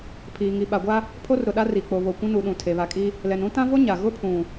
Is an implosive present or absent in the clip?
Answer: present